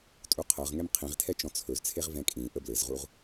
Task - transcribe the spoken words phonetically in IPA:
tʼ u qʰ ɤ ʁ ŋ ɛ m qʰ ĩ ʁ tʰ ɛ t͡ʃ ɔ̃ t͡sʰ ɵ z t͡sʰ e ʁ v ɛ̃ kʼ ĩ ʔ ə b l ɘ z ʁ u ʁ

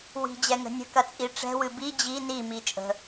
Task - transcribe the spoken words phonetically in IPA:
w i̤ d͡ʑ ɛ ŋ ə̤ nʲ ə̤ k ɐ t͡sʼ i ʈ͡ʂ ɛ̤ w ɨ b i d͡ʑ i n i m i t͡ʃʼ ə̤

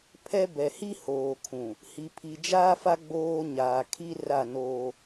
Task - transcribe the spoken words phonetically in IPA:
pʰ ɛ˦ b ɛ˨ h i˦ h oː˨ kʰ ũ˨ | h i˨ pʰ i˨ d͡ʒ aː˦ f a˦ ɡ͡b oː˦ ɲ aː˨ kʰ i˦ r a˦˨ n oː˦

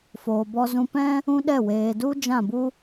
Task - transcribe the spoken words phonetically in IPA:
f oː˨ b ɔ˧ z ũ˧ p ɛ̃˦ | ũ˦ ɗ ɛ˦˨ w eː˨ d u˦ d͡ʒ ã˦˨ b u˦

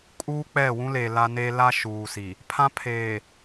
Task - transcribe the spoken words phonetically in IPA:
kʼ uː˦ k͡p ɛ˦˨ w ũ˦ l e˨ l a˦ n e˦ l a˦ ʃ uː˨ s i˨ | pʰ ã˦ pʰ eː˨

